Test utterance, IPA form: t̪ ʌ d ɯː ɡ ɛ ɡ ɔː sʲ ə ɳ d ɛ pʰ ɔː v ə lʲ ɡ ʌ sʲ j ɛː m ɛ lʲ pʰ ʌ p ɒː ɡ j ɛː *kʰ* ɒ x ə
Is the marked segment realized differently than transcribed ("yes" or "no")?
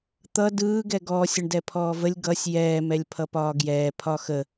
yes